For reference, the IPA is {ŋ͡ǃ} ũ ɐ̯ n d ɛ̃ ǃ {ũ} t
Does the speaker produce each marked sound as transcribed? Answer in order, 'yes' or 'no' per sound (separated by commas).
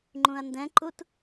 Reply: yes, no